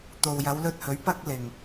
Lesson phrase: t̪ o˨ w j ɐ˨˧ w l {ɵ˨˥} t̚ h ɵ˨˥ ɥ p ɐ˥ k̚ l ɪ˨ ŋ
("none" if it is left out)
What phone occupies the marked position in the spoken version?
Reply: ɵ˧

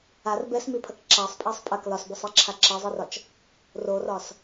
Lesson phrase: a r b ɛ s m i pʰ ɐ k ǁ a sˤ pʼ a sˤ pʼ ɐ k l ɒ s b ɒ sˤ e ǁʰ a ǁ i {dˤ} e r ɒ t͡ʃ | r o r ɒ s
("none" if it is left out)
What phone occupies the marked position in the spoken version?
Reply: zˤ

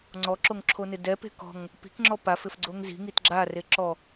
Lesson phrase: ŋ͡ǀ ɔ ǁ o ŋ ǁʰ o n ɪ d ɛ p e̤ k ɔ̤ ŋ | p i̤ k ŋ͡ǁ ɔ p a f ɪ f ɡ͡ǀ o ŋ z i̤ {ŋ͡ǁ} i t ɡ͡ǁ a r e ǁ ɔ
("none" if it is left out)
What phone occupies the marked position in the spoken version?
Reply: ŋ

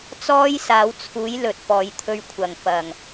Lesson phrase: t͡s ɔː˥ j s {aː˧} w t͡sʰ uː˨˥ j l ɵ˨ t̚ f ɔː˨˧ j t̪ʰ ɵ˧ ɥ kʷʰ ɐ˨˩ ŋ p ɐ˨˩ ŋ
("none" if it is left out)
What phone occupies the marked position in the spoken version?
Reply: aː˨˧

